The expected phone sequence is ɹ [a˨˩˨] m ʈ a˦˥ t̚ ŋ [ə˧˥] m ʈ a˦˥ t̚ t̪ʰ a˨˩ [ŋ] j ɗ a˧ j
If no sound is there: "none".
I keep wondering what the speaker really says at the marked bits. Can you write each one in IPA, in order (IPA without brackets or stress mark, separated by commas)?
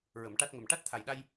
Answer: ə˨˩˨, ə˨˩, none